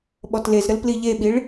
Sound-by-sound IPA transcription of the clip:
ɓɔtlezɾəl pliʎeɓiɭ

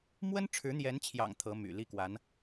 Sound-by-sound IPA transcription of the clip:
mwə˥nʈ͡ʂʰɻ̩˧˥n̪jɛ˧˥nt͡ɕʰjɑ̰˨˩ŋ t̪ʰɤ˧˥my̰˨˩ li˥˩kwa˧˥n

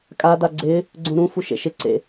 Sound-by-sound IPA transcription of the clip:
kʼa daɡ͡ǀɪː | ɡ͡ǀũɾũ fuʃḛʃɪ ǀḛ

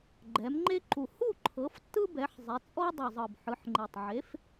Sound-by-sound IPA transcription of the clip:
ɡ͡ǃɛ˩˧mŋ͡ǃe˦ǃu˨˩ hu˥˨ǃʰɤ˩˧ftːɯ˦ bɛ˩˧ħzˤe˩˧t͡sʼɔ˦ dˤɯ˨˩zˤɤ˨˩b ħɯ˩˧ħŋ͡ǃe˨˩tˤʕe˨˥f

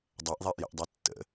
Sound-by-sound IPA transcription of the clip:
dˤɛʔðˤɛʔ jə̰ʔdˤɛtːə̰

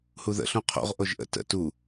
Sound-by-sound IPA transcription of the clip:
huðə̰ ɬũqʰo̰ʁ ʔoʒʔə̰ tə̰ tu

